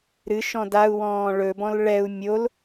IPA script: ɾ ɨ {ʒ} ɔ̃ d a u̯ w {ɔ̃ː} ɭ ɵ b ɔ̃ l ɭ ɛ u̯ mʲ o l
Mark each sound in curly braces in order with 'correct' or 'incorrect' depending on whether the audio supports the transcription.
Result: incorrect, correct

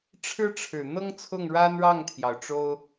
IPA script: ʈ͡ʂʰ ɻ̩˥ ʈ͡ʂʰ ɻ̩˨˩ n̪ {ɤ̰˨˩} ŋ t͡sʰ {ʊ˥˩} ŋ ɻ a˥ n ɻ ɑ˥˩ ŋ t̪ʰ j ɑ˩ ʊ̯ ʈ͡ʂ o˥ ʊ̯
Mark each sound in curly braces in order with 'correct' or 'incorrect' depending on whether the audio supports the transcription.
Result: incorrect, correct

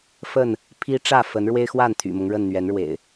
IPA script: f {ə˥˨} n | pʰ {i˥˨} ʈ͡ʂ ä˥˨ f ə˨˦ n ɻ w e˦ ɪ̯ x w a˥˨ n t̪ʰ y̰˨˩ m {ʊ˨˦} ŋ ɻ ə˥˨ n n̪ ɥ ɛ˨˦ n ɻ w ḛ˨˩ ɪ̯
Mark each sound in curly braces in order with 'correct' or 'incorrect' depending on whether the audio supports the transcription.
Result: correct, incorrect, incorrect

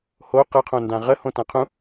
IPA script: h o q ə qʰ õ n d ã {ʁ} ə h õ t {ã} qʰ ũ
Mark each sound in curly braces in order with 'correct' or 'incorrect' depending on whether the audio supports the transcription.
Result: correct, correct

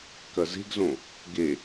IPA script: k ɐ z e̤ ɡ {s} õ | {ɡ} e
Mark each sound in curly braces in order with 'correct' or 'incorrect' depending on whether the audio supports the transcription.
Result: incorrect, correct

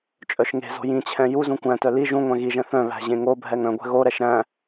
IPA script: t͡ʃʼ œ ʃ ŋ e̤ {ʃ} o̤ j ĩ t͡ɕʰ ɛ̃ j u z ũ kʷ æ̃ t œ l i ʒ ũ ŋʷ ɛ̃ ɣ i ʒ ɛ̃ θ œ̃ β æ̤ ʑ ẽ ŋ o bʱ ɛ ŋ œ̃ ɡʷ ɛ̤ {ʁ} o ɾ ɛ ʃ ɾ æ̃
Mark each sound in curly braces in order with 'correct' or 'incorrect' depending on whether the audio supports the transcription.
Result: incorrect, incorrect

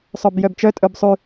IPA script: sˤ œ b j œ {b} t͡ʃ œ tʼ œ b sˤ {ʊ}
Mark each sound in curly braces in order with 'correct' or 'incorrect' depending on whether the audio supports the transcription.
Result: correct, incorrect

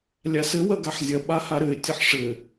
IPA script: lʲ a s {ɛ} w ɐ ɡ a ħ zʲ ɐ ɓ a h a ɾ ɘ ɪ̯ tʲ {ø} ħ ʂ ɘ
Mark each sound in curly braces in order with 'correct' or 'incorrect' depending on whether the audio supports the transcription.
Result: incorrect, incorrect

